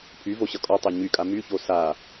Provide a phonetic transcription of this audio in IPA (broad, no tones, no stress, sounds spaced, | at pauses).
pʰ y v o ɕ ʌ kʼ ɔ tˤ o ɲ y kʼ a m y ç o s a